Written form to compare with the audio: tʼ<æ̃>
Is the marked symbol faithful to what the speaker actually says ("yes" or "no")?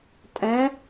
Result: no